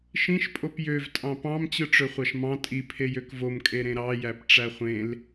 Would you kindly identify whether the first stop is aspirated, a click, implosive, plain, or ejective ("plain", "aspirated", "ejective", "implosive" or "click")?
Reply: ejective